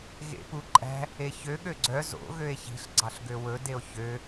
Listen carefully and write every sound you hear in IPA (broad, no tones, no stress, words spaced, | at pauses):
ɣḛpuǃʼæ̤ | eçø ɠøɡ͡ǀœ zo̰ ɣøe̯çi̤ɬ ɡ͡ǀɑɬɡøwɵdeo̯ çø